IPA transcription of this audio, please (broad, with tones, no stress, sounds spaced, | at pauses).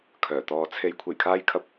kʰ œː˨˩ t̪ ɔː˧ t͡sʰ e˧ j kʷʰ e˨˩ j kʰ aː˧ j kʰ ɐ˧ p̚